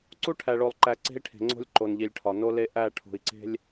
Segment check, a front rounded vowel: absent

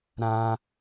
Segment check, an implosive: absent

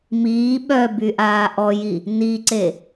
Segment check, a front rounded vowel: present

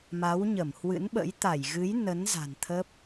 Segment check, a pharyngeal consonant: absent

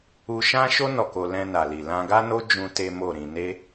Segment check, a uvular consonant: absent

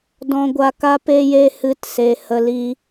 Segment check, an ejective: absent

